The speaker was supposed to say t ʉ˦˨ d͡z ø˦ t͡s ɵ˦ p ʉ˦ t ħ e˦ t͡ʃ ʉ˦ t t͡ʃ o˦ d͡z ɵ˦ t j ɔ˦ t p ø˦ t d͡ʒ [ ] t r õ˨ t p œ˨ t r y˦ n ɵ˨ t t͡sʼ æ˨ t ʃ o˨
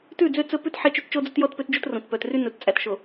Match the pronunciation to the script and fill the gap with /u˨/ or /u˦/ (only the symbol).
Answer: u˦